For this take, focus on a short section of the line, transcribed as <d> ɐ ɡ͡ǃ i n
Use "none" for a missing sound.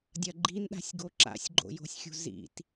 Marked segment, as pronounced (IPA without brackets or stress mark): dʲ